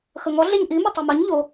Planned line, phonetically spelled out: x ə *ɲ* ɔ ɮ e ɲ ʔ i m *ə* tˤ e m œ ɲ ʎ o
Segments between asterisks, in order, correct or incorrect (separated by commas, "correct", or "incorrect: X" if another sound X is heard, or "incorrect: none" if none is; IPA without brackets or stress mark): incorrect: ŋ, correct